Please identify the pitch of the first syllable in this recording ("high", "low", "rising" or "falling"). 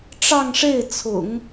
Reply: falling